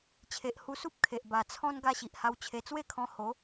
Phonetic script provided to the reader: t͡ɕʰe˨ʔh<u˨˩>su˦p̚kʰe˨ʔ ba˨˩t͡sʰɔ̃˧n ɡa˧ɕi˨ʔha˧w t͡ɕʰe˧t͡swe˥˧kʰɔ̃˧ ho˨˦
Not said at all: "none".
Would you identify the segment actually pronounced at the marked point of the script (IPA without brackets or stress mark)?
u˧